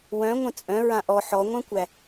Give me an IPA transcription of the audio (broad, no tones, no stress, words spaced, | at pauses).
wœ̃ ŋʷə̃t͡sʼœ̃ ɹãʔɔ ħɔŋʷœ̃kʷæ